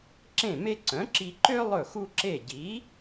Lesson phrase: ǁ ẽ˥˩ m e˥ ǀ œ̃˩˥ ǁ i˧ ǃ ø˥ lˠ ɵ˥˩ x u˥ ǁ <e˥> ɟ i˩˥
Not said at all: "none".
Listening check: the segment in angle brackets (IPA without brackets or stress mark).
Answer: e˥˩